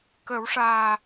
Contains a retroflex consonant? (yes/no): yes